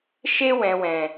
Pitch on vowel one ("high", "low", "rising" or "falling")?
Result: high